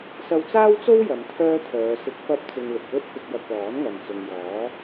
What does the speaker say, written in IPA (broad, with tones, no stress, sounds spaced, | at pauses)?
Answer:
s ɐ˧ w t͡s aː˥ w t͡s o˥ w j ɐ˨˧ m t̪ʰ œː˥ t̪ʰ œː˨˧ s ɪ˨˥ k̚ f ɐ˧ p̚ t͡s ɪ˨ ŋ l ɪ˨ k̚ w ɵ˥ t̚ f ɪ˧ k̚ j ɐ˧ k̚ l ɔː˨˥ n ŋ ɐ˨ n t͡s ʊ˨ ŋ j ɔː˨˥